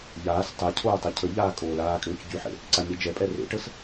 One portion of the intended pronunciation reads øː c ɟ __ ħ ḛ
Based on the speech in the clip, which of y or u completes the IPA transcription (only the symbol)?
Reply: y